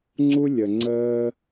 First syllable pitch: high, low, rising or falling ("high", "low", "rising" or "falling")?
high